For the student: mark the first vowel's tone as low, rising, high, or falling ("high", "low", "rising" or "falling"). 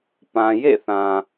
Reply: low